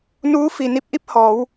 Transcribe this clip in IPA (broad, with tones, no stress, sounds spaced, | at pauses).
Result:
n uː˧˥ f i˩ n i˧˥ p̚ ʔ i˧˥ p̚ h ɔː˩˧ w